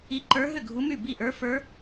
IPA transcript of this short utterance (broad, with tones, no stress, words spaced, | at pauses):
i˧˥ǃə˞˧˥ ɦʏ˥˩ɡʱu˧˥my˥˩bi˥˩ ʔə˞˧˥fə˞˧˥